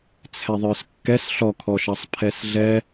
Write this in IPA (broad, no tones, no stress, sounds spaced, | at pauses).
t͡sʰ ɛ ðˤ ə˞ s kː ɛ s ɬ ɔ kʰ ɔ ʃ ɑ sˤ pʰ ɛ s ɮ ɛ